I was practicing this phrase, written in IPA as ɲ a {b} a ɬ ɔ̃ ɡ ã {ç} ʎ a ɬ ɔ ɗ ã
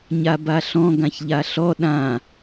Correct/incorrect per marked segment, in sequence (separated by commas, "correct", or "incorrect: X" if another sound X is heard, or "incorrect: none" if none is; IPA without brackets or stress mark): correct, correct